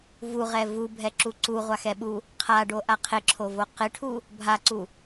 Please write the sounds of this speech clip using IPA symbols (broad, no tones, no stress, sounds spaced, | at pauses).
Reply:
v u ʁ ɛ v u bʱ ɛ ǁ u ǀ u ʁʷ a x ɛ ɓ u | qʰ a ɖ o ʔ a qʰ ɪ ǁʰ o v o q ɪ ʈʰ u | bʱ a ǀ u